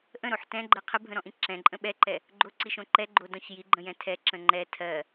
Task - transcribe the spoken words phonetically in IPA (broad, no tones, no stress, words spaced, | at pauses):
ʔə̃ɾoħ tɛ̃ɡ͡ǃɜ qʰəbʱə̃ɾɔ̃ʔĩ ǁɛ̃ǃʼə̃ ɓɛǃɛ | ɡ͡ǃoǀiʃõ ǃɛɡ͡ǃodɔ̃ç jiɡ͡ǃə̃jɛ̃ tʰɛǁə̃ ŋ͡ǃɛ tʰɜ